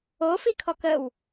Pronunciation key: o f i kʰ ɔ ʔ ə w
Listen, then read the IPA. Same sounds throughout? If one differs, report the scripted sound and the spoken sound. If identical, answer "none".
ʔ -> k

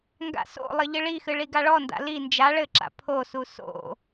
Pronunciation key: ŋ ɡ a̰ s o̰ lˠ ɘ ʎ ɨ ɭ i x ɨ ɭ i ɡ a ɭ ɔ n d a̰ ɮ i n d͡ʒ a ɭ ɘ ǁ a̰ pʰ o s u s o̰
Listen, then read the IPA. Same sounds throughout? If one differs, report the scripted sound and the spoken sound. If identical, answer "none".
ɮ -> l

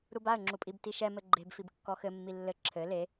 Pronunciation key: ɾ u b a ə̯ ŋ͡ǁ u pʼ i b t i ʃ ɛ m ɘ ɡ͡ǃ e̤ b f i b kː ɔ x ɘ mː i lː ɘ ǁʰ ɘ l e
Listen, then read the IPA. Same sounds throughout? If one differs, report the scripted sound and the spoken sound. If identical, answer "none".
none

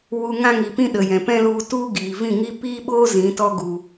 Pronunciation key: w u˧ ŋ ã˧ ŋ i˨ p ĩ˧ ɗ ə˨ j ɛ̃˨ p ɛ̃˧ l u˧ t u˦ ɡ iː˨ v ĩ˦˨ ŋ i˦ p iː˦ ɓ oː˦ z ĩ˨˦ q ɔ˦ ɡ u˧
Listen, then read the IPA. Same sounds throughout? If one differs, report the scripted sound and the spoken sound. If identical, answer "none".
q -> t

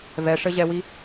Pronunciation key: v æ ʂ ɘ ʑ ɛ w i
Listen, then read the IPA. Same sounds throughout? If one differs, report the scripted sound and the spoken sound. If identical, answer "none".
æ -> ɛ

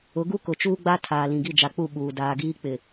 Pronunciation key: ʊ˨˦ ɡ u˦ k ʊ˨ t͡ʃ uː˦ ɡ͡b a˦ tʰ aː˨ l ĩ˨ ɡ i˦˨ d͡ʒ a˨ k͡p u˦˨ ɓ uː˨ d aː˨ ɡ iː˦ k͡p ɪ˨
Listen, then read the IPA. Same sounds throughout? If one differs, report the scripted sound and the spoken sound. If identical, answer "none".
none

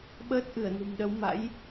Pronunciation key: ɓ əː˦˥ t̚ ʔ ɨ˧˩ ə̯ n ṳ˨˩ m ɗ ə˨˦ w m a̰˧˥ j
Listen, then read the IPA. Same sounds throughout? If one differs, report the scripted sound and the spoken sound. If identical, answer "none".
none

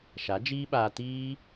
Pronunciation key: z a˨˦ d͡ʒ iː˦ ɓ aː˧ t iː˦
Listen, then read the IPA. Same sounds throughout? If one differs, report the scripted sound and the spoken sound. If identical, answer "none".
z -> ʃ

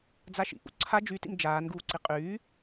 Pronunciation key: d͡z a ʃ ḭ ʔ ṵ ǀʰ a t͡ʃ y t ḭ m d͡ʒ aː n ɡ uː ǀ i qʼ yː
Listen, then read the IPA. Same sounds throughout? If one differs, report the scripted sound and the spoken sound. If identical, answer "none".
t͡ʃ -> d͡ʒ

